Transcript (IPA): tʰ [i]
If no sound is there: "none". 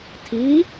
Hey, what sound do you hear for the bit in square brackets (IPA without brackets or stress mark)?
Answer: i